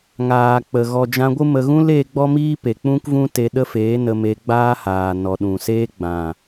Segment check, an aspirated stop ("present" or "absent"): absent